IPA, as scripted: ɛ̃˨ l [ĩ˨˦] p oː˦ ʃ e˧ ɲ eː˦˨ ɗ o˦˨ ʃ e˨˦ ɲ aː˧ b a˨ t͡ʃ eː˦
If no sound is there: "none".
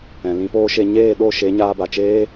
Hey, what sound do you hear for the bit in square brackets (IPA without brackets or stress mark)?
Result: ĩ˨˦